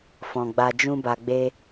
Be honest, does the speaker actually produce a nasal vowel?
yes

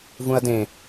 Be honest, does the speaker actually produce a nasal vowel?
yes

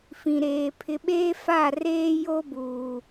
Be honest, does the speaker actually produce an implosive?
yes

